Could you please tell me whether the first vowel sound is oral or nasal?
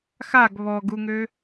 oral